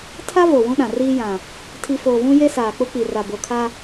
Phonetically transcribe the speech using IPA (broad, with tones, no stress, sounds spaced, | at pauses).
tʰ a˦ v o˨ w ũ˦ ɗ ã˨ r iː˦ j ã˨ | tʰ i˨ f oː˨ v ũ˦ j e˦ s aː˨ k͡p ʊ˦ k͡p i˨ r a˨ b o˨ kʰ a˦